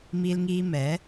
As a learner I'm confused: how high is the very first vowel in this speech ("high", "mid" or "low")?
high